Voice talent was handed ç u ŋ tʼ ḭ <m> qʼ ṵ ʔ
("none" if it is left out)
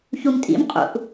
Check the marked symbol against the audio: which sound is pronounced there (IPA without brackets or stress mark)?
m